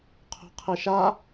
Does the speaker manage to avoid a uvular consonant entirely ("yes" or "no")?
no